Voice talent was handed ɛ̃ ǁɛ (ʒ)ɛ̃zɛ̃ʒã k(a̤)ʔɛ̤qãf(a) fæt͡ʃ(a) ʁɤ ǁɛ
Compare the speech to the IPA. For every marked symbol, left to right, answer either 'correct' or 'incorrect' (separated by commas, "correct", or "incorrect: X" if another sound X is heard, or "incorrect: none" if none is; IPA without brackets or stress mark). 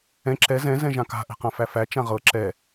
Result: incorrect: z, correct, incorrect: æ, incorrect: ã